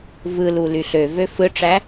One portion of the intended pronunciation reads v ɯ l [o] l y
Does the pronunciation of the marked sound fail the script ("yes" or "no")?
yes